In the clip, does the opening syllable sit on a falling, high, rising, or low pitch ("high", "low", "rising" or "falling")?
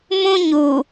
high